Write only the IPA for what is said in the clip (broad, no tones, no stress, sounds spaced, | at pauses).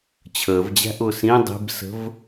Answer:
t͡ɕʰ əː v d͡ʑ æ̤ ʔ ʊː s ĩ dˤ i̤ b s ə̤ v